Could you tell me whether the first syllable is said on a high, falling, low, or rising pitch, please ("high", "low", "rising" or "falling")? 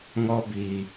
high